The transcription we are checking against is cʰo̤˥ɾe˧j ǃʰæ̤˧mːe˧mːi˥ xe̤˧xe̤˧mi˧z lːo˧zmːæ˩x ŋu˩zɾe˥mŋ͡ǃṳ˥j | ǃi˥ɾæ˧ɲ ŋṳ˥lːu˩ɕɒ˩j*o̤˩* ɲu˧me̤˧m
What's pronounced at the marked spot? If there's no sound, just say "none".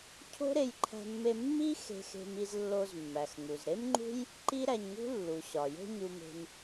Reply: o̤˥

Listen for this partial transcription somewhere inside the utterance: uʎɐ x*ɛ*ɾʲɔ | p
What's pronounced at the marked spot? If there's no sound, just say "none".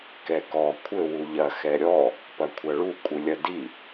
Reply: ɛ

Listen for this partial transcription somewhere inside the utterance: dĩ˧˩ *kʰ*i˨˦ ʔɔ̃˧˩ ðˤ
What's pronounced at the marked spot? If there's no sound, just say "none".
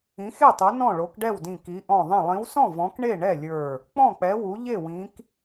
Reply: k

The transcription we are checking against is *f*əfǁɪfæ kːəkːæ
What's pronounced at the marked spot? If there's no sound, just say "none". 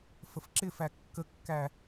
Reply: f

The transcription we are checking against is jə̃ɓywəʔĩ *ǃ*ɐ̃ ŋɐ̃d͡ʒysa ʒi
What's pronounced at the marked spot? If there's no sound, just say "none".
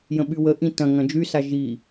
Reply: t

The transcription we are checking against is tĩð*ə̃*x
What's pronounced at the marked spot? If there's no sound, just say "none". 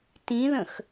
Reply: ə̃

